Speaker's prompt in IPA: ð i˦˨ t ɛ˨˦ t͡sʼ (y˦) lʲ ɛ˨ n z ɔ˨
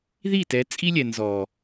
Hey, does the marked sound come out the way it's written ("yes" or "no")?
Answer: no